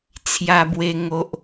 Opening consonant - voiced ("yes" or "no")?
no